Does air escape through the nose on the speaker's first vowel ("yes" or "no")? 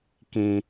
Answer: yes